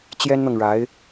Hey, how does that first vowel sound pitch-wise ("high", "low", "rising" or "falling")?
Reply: high